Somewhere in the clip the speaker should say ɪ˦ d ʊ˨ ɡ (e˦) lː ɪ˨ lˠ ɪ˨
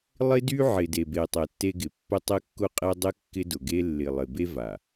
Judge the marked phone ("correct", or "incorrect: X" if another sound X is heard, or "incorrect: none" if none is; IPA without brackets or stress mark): correct